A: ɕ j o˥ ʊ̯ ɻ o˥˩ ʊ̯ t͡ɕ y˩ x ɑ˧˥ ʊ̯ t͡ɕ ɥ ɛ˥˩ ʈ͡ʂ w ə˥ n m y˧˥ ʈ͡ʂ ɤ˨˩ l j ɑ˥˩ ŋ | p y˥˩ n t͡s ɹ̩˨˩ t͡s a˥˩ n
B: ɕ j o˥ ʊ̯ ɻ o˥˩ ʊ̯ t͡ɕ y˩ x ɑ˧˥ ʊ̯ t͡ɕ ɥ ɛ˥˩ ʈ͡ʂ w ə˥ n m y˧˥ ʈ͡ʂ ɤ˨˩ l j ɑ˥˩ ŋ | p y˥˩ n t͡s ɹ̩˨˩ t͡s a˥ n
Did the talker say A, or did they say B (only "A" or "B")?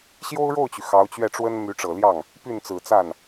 A